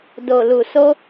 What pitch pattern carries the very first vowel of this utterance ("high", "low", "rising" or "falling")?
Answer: low